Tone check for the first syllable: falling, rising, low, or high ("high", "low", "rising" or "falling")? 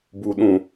low